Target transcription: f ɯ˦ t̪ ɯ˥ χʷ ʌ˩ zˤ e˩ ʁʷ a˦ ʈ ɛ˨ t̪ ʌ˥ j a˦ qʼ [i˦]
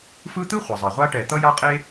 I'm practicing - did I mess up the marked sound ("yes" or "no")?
yes